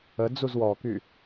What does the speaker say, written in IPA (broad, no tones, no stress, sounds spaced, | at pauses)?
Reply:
ə d͡z u z w ɔ k y